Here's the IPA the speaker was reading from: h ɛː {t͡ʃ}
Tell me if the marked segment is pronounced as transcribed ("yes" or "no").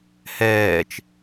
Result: yes